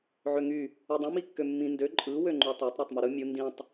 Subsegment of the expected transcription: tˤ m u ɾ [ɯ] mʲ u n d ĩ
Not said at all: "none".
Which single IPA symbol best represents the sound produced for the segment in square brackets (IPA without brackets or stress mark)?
ɯ